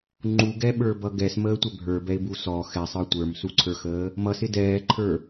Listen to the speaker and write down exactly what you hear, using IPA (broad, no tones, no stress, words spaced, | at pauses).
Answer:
ŋ͡ǃuɡɛɓə˞bʌ ɡɛsməːtʷɛ bʱə˞bɛɪ̯bu sɔ xɛsˤə˞ tʷə˞msuǀʰə˞xəː | mʌsɪ dɛːǃʰə˞